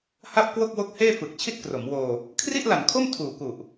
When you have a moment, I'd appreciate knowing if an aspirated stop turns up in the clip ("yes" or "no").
yes